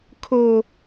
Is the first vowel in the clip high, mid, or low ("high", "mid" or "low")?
mid